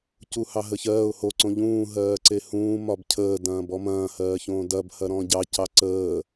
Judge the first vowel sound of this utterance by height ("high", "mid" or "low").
high